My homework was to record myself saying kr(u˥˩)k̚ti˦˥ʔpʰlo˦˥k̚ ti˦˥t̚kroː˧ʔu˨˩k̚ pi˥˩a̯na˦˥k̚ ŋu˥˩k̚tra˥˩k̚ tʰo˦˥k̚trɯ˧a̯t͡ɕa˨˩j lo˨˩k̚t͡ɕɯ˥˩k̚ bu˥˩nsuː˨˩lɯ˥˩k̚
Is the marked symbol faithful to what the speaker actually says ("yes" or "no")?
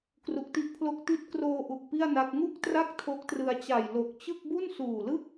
no